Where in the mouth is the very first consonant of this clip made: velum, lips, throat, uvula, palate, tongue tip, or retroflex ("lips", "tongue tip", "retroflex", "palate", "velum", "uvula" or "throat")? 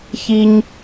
palate